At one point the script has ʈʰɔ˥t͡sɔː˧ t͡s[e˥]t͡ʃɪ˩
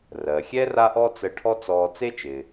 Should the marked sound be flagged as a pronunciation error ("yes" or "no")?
no